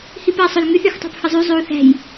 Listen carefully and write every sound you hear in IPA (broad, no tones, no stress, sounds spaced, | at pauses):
h i p æ sˤ ø l ŋ y θ y x tˤ æ̤ p h ɯ zˤ y zˤ y u̯ θ æ̤ j